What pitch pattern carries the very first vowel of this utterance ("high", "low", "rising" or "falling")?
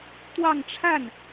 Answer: falling